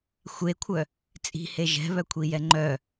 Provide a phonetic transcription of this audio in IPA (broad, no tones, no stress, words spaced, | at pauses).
xʷekʷʰœ | t͡sʼi̤he ʒɛ̤βœkʷʰijɛ ŋ͡ǃœ